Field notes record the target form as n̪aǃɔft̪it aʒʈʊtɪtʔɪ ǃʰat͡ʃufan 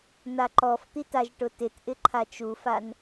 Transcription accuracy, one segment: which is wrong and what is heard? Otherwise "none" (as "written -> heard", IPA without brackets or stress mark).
none